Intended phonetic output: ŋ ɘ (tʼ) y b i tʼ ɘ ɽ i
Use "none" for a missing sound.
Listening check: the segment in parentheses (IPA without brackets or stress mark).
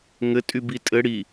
tʼ